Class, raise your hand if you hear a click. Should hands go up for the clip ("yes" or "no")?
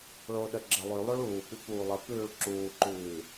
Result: yes